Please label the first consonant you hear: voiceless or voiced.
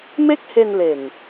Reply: voiced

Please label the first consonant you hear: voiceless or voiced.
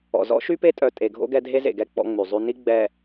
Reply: voiced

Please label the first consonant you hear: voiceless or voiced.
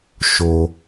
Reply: voiceless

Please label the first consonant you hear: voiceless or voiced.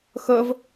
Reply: voiceless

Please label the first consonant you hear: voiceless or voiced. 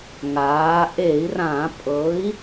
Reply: voiced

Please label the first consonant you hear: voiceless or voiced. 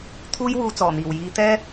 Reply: voiceless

